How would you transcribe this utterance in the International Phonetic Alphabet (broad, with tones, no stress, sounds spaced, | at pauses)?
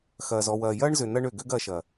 x ɐː˨ z ɔ˨ w ɐː˨ j ɐː˦ ɳ z ʏ˨ n ɐ˧ ɳ ø˨ ɡ ø˦ ɡ ɐː˧ ʃ ɐː˨